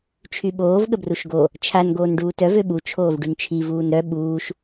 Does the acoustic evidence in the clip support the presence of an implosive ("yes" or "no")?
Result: yes